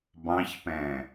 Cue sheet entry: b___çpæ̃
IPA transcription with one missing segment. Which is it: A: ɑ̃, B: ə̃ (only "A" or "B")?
A